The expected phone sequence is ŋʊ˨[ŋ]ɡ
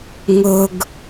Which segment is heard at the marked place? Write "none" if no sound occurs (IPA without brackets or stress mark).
none